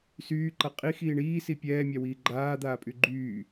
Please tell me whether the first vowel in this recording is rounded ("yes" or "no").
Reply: yes